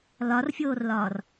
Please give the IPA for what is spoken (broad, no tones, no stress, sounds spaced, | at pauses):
l ɒ r fʲ oː r l ɒː r